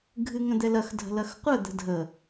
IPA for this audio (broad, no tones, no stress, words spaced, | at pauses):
ɡʱɨŋə̃d̪ɛlɐx dʱə̤lɐxqʷə d̪ə̤dʱə